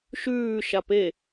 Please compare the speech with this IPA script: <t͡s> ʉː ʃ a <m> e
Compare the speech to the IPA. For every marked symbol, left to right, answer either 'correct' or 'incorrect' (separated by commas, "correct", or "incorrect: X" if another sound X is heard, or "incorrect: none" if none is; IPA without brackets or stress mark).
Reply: incorrect: ʃ, incorrect: p